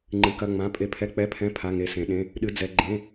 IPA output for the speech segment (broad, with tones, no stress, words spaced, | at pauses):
ŋ͡ǃɨ˩˧kɐ˩˧˩ŋ͡mã˩˧˩ pʼe˩˧pʰɛ˩˧˩k͡pɛ˩˧˩pʰɛ̃˩˧˩ pʰa˩˧˩ŋe˩˧sẽ˩˧ ɗẽ˩˧˩ | ɗɨ˩˧d͡zɛ˩˧ ɡ͡ǃẽ˩˧˩